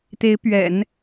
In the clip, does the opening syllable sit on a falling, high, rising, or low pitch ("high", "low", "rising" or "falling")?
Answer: rising